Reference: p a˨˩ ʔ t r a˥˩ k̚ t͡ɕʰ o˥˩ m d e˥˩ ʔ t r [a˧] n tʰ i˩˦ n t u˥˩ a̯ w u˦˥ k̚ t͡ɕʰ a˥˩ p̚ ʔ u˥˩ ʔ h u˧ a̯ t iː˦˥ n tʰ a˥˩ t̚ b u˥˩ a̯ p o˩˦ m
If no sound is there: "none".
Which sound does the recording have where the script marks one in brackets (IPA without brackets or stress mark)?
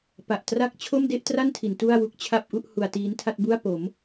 a˥˩